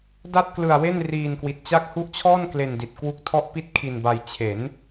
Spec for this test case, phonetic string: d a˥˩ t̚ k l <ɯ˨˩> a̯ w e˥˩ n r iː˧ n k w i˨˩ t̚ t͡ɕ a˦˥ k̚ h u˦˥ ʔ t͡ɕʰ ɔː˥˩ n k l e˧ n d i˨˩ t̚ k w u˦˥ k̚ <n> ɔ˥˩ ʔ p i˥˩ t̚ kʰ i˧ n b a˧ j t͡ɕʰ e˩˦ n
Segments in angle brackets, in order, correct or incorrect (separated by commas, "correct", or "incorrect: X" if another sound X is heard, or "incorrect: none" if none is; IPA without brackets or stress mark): incorrect: ɯ˧, incorrect: tʰ